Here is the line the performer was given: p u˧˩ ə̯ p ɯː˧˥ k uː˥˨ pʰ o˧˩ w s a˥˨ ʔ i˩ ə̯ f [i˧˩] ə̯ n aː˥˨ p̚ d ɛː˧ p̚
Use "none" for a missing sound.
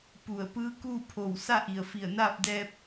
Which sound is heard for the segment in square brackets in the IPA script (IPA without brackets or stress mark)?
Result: i˧˩